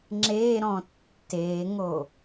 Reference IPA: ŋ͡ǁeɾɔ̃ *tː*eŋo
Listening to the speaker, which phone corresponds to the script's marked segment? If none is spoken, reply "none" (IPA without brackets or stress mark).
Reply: tː